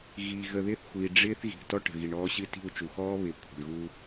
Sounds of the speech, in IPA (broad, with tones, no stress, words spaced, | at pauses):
ɣiː˨ ɣə˨ðɪː˦θxʷiː˨ ɖ͡ʐɪː˦θ ɣi̤˨ʔtɔ˦ʈə̤˨ɣi˨ɳ ɔː˦ɕɨ˦ti̤˦˨u̯ t͡ʃu˨xɔː˦βɪː˨ kʷʰə̤˨ɳɣu˦